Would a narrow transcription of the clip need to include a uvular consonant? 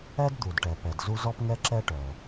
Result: no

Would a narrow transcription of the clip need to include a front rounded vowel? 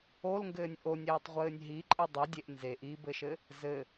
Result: no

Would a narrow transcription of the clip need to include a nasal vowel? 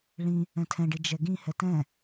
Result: yes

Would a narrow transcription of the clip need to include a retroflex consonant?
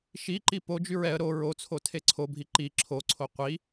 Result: no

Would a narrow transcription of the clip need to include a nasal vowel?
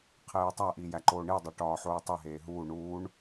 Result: no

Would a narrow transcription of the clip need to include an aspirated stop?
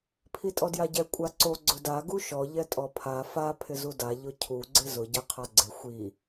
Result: yes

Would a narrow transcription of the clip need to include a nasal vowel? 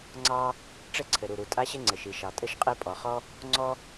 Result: no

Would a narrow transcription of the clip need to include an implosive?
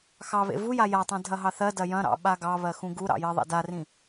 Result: yes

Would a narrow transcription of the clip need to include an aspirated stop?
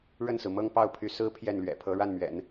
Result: yes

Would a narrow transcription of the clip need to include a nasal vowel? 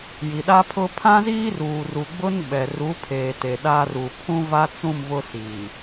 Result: yes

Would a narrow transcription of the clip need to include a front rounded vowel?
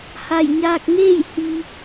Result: no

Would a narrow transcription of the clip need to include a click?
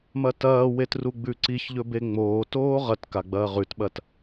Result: yes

